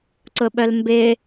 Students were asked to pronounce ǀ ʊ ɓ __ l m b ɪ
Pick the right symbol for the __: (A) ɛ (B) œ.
B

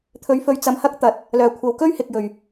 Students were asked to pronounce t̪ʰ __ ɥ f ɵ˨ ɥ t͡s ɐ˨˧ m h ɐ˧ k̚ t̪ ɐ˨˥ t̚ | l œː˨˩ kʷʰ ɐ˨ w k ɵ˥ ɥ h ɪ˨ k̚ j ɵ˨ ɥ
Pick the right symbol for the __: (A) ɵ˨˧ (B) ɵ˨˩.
A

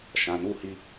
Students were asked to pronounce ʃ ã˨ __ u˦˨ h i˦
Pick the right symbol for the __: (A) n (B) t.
A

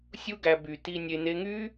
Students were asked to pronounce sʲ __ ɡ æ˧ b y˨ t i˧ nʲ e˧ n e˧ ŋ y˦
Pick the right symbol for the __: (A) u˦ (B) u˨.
A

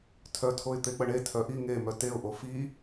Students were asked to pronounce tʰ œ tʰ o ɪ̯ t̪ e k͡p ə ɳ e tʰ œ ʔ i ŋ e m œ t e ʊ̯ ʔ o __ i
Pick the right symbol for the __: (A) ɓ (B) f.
B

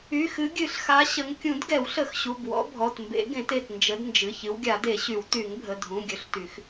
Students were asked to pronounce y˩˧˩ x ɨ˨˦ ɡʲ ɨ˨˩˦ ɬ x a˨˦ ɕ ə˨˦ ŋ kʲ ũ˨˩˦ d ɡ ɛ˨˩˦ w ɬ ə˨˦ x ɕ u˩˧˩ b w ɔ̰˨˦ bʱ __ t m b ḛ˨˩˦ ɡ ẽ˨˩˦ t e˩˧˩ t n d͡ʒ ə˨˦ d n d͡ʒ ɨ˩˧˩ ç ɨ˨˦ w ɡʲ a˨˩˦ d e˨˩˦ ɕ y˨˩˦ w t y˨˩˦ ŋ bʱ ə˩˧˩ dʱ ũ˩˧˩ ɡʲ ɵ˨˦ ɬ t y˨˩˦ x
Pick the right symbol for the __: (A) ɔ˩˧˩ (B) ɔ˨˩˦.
A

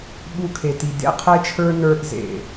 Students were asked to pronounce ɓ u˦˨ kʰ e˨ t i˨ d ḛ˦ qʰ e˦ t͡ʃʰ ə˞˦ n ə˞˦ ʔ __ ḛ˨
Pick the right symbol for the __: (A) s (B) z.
B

